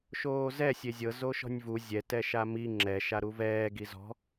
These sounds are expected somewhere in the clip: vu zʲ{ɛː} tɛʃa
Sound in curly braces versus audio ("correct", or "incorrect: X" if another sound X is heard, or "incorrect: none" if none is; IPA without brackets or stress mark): incorrect: ɛ